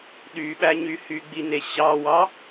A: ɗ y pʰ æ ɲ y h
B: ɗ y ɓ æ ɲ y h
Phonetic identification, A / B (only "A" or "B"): B